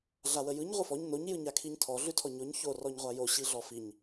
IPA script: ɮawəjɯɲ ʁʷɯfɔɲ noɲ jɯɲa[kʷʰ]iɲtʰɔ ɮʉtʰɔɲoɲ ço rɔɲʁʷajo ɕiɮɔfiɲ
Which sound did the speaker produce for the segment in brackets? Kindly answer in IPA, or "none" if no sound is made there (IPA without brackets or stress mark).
kʰ